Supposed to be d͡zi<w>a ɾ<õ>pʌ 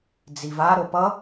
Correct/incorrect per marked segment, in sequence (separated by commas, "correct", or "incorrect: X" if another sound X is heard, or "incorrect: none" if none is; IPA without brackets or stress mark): incorrect: v, incorrect: o